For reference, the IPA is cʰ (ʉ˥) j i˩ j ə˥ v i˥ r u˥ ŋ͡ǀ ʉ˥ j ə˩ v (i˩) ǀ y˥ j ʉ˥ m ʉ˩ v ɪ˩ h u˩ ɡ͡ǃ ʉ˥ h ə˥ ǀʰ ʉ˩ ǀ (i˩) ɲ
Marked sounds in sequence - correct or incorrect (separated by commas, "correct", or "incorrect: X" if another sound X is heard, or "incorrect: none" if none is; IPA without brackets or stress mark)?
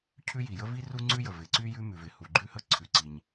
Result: correct, incorrect: ɪ˩, correct